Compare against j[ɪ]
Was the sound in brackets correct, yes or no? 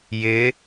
yes